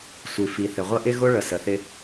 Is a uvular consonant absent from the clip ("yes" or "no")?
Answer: no